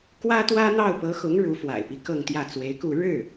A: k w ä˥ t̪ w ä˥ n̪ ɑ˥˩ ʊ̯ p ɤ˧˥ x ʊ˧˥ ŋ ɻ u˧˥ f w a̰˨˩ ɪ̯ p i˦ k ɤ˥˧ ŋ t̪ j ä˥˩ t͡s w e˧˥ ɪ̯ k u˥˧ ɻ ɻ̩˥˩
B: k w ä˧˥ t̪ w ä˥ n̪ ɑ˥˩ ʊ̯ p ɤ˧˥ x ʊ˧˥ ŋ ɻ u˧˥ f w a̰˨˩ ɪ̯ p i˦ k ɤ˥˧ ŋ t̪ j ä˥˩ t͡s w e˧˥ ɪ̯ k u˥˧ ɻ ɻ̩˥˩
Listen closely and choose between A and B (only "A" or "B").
A